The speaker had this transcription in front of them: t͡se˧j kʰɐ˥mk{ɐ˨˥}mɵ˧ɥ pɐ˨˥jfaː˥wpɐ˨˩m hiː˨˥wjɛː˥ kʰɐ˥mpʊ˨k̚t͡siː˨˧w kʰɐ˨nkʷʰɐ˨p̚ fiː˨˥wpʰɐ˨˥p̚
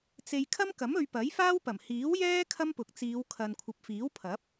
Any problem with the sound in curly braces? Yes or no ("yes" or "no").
no